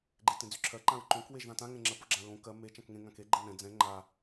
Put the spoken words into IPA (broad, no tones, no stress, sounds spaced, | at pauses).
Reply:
ɡ͡ǃ e t ẽ d͡z y ǁʰ ɜ ǃ ã ɹ ǃ õ k w e ʒ ð ã t ã ŋ ɛ̃ ŋ͡ǁ ɜ p o ɡ͡ǁ ã ɹ õ k ɜ m e t͡ʃ ã k ŋ ẽ ŋ ã k e ɡ͡ǃ ɛ n ɛ̃ d͡z ɛ̃ ŋ͡ǃ a